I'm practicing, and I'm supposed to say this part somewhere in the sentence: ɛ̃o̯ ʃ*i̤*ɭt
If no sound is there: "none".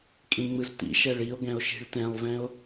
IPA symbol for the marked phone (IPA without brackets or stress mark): i̤